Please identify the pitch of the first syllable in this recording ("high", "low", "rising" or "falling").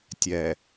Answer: low